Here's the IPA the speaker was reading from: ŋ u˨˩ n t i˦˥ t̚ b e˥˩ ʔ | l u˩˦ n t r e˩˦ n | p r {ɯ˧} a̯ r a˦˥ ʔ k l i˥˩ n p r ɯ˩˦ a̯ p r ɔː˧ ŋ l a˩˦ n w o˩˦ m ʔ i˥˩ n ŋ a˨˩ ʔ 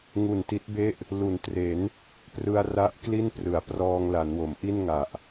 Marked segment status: correct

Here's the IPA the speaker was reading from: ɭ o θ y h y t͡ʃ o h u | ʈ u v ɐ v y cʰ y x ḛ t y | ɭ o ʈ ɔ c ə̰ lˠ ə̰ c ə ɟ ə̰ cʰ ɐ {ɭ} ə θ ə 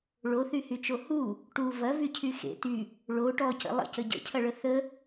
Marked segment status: correct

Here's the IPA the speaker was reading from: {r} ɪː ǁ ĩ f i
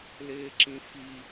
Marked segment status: incorrect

